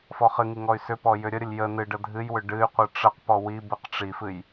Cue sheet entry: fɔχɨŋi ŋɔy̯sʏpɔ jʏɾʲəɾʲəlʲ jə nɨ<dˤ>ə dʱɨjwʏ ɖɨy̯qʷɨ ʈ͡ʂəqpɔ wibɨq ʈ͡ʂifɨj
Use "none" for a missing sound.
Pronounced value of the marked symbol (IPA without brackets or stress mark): ɖ